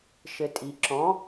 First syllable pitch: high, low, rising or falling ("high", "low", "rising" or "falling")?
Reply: low